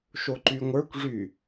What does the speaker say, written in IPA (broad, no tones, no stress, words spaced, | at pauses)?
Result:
ʃoǃyŋʷə˞kʷʐy